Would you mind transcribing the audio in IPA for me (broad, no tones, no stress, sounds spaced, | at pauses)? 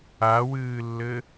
a w ɨː lː ɘ